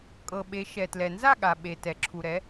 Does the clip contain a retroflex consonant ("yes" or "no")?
no